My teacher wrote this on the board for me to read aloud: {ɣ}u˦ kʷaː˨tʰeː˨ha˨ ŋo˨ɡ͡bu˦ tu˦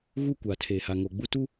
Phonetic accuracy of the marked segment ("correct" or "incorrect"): correct